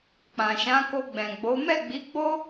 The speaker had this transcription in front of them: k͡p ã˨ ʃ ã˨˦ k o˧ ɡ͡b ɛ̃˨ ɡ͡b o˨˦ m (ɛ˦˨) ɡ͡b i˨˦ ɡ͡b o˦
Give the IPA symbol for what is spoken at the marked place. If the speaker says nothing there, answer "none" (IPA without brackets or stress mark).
ɛ˦˨